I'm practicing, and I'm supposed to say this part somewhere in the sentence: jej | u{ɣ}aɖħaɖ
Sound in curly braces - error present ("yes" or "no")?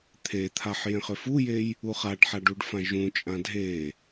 yes